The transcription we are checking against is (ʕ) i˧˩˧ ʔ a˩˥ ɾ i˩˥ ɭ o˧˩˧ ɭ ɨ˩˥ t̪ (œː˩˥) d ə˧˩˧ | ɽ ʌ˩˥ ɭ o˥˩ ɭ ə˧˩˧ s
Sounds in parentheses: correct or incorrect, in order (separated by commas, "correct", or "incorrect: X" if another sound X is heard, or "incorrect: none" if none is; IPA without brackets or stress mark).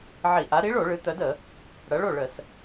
correct, incorrect: œ˩˥